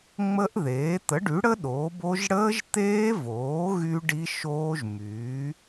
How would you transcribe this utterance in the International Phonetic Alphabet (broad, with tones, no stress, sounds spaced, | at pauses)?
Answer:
ŋ͡m ə˦˥ ʔ ð eː˩˥ t̪ ə˩˥ ɖ y˩˥ ɽ ə˦˥ ɗ oː˩˥ b o˦˥ ʒ ɽ əː˦˥ ʒ t̪ eː˦˥ v oː˩˥ ɣ y˦˥ ɖ i˦˥ ʃ oː˦˥ ʒ m yː˩˥